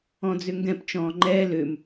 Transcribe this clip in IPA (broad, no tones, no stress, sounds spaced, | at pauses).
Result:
ɔ̃ d͡z ʏ ŋ ɡ ɛ̃ p t͡ʃ ɔ̃ː ŋ͡ǃ ɛː l ʏ m